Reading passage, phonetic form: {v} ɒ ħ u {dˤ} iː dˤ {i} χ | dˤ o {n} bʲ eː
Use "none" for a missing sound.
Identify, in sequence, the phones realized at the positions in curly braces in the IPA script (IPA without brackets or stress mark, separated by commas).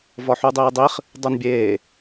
v, dˤ, i, n